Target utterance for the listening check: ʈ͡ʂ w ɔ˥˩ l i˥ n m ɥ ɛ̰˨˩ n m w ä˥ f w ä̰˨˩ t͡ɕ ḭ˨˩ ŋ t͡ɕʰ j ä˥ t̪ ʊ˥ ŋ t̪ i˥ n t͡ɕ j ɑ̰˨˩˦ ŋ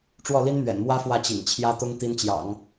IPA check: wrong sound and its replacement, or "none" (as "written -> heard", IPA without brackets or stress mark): ä̰˨˩ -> ä˥˩